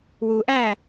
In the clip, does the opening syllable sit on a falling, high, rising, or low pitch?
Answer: low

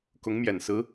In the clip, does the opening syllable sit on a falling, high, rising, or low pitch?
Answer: rising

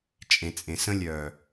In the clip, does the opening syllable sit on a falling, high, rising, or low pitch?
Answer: low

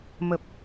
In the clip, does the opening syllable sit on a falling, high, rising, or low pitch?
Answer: low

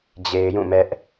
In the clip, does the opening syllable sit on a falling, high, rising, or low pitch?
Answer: low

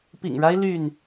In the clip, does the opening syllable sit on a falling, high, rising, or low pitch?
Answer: low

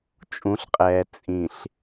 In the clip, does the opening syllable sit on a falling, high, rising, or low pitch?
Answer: rising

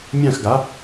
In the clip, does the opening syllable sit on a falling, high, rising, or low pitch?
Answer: falling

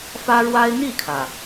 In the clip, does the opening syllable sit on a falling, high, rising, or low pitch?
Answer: high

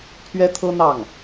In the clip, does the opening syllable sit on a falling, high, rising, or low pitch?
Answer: high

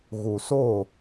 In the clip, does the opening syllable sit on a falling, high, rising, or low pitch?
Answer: low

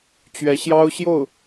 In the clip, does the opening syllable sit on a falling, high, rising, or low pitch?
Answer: rising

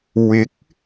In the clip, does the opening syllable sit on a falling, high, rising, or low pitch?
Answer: rising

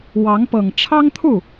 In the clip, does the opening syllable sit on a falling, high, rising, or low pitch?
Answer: rising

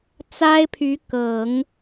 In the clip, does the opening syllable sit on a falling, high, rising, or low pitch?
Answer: high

